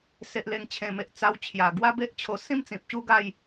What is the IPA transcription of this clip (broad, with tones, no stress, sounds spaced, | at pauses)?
s e˨ ʔ l e˨˩ ŋ t͡ɕʰ ẽ˨˩ m e˨ ʔ t͡s a˧ w t͡ɕʰ j a˨˩ ɡ w a˧ b e˦ ʔ t͡ɕʰ o˧ s ĩ˥˧ m t͡s ĩ˨ p̚ ɕ u˥˧ ɡ a˥˧ j